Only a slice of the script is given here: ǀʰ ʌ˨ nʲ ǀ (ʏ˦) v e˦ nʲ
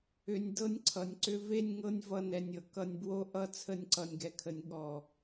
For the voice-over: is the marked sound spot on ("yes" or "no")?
yes